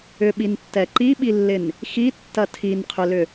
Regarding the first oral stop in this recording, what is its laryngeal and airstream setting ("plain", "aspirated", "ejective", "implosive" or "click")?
implosive